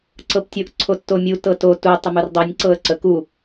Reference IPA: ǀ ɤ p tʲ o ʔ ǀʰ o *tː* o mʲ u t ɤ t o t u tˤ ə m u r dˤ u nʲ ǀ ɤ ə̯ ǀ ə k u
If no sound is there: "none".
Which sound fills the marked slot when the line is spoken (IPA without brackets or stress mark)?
tː